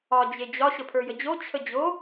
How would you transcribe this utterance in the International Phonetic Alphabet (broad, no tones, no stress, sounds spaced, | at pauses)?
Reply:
ɒ d͡ʑ e d͡ʑ ɒ ɕ ə pʰ ə˞ j ə d͡ʑ o t͡ɕʰ ə d͡ʑ o